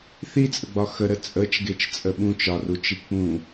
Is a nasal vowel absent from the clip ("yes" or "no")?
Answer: no